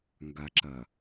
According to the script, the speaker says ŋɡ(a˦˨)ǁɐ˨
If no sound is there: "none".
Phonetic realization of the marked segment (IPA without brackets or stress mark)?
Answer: a˨